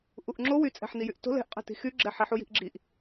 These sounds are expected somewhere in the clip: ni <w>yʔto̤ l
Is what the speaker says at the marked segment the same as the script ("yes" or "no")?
no